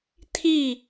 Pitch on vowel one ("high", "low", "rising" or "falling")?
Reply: falling